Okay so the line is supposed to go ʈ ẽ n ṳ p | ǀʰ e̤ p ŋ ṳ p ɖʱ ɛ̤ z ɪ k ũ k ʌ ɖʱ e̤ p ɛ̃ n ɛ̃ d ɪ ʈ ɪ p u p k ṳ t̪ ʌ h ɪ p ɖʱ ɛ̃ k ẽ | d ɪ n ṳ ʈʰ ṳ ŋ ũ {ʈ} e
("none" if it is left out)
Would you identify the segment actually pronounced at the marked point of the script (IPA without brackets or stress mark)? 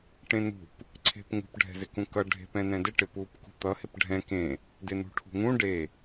ɖ